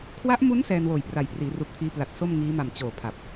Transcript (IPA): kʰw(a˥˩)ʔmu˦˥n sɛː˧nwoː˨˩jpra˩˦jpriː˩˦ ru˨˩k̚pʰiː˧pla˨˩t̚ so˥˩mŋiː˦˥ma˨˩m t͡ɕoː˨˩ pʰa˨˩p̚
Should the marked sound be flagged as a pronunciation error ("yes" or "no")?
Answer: yes